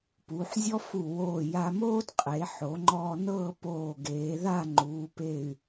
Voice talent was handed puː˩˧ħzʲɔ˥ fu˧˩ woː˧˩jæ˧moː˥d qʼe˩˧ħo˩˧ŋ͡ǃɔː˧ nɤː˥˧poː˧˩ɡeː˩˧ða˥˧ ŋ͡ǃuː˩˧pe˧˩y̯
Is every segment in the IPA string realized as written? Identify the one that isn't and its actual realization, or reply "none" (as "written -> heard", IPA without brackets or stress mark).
æ˧ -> a˧